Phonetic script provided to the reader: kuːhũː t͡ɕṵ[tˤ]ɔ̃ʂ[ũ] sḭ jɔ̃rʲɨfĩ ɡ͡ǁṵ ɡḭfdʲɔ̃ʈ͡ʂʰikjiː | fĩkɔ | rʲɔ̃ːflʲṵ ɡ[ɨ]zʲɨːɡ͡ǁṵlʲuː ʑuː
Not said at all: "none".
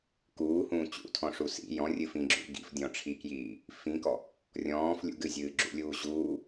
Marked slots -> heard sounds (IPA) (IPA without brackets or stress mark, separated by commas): tʰ, u, ɨ